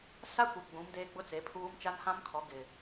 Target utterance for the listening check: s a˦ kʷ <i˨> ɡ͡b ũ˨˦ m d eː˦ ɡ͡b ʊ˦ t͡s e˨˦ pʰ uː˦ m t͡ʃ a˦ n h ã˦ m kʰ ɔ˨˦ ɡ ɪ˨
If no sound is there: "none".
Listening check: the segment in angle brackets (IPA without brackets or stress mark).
i˨